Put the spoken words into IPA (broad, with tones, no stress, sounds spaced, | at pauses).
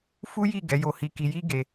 f u˦ j i˦˨ ɡ ɛ˨˦ j o˧ h i˧ k i˧ j i˦ ɡ e˧